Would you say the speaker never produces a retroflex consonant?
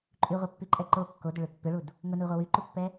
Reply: no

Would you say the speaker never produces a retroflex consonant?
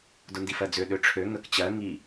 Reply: no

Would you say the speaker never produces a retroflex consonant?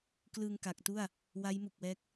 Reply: yes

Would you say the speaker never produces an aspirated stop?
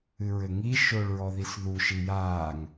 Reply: yes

